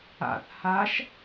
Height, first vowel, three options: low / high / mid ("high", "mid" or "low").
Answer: low